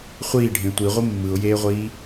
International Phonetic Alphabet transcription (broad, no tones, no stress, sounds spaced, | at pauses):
χʷ iː ɖʱ ẽ tʷ i ʁʷ ɯ mː ɯ ʊ̯ j eː ʁʷ iː